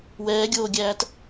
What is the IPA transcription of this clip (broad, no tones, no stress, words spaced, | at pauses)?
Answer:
wɛːɡʲoːɡʲæːt